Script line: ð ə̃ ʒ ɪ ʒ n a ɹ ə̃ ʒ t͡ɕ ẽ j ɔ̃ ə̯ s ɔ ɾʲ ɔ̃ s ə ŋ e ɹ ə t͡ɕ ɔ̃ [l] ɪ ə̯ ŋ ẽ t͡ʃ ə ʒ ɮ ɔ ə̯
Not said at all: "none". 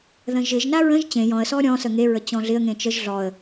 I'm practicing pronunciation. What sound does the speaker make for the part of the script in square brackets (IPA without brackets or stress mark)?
ɮ